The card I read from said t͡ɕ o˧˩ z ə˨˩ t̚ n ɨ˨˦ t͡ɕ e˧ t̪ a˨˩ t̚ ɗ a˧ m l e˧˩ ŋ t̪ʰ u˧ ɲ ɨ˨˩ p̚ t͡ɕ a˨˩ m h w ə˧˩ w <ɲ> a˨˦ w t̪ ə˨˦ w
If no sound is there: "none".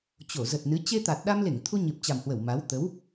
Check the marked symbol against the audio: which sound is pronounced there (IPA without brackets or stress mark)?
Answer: m